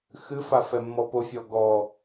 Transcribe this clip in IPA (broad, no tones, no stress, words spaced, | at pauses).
xɨfa fɛmːɔpofʲɔ ɡɔ